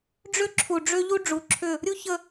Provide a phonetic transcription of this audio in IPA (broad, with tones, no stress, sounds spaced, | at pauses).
ɖ͡ʐ ʏ˦ ǁʰ u˨ ɖ͡ʐ ʏ˦ ʎ u˦ ɖ͡ʐ u˨ ǁʰ ʏ˦˨ | ɾʲ u˦ ç ə˦